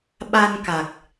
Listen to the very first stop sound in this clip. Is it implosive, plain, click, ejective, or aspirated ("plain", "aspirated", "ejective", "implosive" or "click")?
implosive